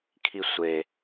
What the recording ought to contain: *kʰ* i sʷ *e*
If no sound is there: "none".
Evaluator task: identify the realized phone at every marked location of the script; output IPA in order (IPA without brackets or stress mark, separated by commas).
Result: kʰ, e